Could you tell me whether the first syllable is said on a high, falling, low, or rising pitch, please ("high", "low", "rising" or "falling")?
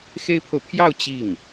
high